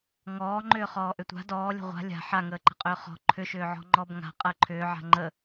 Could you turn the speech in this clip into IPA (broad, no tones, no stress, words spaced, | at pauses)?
ŋɔːŋ͡ǃʏː χɔːʔʏtʷa̤ dɔːlʲə̤ ʁʷa̤ lʲa̤ ħaŋəːǃə̤qʼʏː χɔ̤ ǃʰʏʃʏːʕɔ̤ ŋ͡ǃɔbŋa̤ qʼəːǃʰʏːʕa̤ ŋ͡ǃə